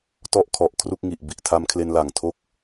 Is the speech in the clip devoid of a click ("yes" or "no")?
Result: yes